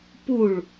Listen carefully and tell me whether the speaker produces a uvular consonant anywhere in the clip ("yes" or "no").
no